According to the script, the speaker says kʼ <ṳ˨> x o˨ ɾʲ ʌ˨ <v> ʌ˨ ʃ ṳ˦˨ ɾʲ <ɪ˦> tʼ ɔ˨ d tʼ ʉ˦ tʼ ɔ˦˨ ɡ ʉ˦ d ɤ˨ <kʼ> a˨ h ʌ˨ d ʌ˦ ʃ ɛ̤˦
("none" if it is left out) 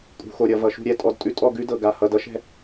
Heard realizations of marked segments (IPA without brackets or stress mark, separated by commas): ṳ˨, v, ɛ˦, ɡ